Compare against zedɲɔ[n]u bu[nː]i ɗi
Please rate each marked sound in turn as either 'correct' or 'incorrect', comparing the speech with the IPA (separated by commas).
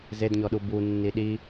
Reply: incorrect, correct